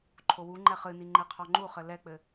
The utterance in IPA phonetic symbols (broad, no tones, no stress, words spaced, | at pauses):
ǃʰowuŋ͡ǃɛ χɨni ŋ͡ǃeqʰɔŋ͡ǃuχɘ lɛk͡pɘ